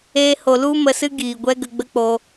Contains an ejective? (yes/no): no